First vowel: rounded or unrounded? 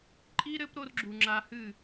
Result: unrounded